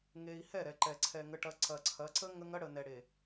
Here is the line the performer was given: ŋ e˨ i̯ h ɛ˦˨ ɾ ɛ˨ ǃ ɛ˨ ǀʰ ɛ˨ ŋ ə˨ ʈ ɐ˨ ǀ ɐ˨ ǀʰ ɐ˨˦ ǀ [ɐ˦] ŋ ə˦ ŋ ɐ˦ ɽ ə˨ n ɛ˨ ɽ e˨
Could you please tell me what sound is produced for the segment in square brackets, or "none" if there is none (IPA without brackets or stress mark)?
ə˦